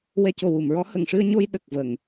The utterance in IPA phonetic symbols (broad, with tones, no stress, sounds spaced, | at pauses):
w ɛ˧ c o˨˩ w u˨˩˨ m ɹ ɔ˧˥ h ə˨˩˨ ŋ ʂ ɨ˧ ə̯ ɲ o˧ j ɗ ə˨˩ k̚ v ə˨˩˨ ŋ